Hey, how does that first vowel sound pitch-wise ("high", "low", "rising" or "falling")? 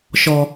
high